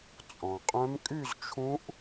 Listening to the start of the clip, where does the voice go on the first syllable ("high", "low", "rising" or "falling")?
low